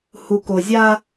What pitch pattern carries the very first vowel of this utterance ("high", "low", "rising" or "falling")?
low